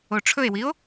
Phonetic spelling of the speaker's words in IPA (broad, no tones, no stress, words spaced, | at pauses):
oʈ͡ʂʰɵe̯wio̯